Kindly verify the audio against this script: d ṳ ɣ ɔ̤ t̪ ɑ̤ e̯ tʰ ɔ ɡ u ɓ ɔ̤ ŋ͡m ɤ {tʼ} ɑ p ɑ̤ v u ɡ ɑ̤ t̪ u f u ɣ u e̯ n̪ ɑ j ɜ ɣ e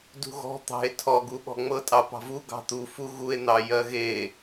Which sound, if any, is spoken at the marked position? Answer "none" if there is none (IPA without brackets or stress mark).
tʼ